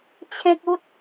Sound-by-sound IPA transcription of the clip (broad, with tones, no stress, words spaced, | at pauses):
t͡ɕʰẽ˦k̚u˦t̚